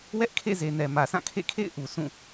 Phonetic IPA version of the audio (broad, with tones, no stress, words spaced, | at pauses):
wɛ˦ʔkʰḛ˦˨ze˨ nɛ˨mä˨sã˦˨ kʰḛ˦˨kʰḛ˦˨ɪ̯ʔu˨ sũ˦˨